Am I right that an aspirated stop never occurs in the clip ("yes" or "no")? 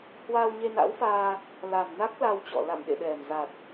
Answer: yes